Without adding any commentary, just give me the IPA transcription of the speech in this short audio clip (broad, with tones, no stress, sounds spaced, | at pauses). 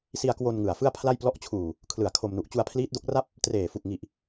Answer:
s i˧ a̯ k w o˧ n ŋ ɯ˨˩ a̯ f ɯ˥˩ a̯ pʰ l a˥˩ j p l ɔ˦˥ ʔ t͡ɕʰ uː˨˩ | kʰ l ɯ˨˩ a̯ kʰ o˧ m n u˨˩ ʔ t͡ɕ u˧ a̯ pʰ l iː˦˥ t̚ d o˦˥ k̚ r a˥˩ p̚ | t r eː˨˩ f u˨˩ k̚ ŋ i˨˩ ʔ